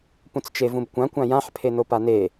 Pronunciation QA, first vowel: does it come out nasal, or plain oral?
nasal